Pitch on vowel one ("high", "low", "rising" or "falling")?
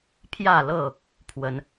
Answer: falling